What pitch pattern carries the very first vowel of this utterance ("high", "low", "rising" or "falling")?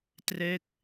falling